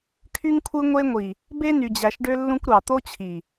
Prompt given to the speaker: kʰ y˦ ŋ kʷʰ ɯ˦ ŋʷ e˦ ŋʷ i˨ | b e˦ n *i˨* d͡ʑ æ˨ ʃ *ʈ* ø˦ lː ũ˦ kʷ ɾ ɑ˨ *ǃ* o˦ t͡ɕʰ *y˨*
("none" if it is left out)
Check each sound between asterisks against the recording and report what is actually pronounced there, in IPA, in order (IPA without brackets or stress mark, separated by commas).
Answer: y˨, ɖ, t̪, i˨